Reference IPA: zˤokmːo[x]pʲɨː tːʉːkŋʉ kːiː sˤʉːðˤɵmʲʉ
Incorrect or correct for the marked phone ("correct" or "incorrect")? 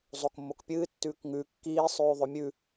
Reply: incorrect